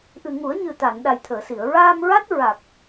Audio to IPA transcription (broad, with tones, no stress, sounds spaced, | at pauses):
ʔ ɨ˨˩ ŋ u˨˩˦ ə̯ ɲ ɨ˨˩ t̪ a˨˩˨ n ɗ a˨˩ j t̪ʰ əː˨˩˨ s i˨˩˨ ə̯ ɹ aː˧ m ɹ a˦˥ t̚ ɹ a˨˩ k̚